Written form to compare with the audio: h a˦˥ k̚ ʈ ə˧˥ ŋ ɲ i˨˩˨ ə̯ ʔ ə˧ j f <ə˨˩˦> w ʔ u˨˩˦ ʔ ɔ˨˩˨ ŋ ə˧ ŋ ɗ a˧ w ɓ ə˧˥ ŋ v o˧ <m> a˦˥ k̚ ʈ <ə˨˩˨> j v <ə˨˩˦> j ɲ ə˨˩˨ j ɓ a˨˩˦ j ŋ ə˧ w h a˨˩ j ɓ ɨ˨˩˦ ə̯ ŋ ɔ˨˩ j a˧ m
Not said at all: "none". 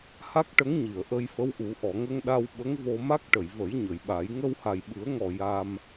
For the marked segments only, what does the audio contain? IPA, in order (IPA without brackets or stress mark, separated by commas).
ə˧˥, m, ə˨˩˨, ə˨˩˦